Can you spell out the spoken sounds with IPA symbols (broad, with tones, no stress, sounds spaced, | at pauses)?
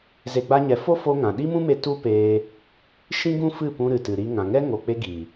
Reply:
z e˧ ɡ͡b a˦ ɲ ɛ˧ f o˦ f o˧ ŋ ã˨ ɗ i˦ m ũ˦ m e˧ t u˦ p eː˧ | ʃ ĩ˦ ɡ ũ˦ f ɨ˦˨ p ũ˧ ɾ ɨ˨ t ɨ˨ ɾ i˧ ŋ ã˨ ŋ ɛ˦ ŋ o˨ k͡p e˧ ɡ iː˨